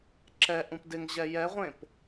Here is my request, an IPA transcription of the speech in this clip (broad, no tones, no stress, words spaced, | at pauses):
ǁɛ ʔũpdɪŋʑɛ jɛʁʷẽp